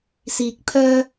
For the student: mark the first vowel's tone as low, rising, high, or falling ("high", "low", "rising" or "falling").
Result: rising